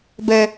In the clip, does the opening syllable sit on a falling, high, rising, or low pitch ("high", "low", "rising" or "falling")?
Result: high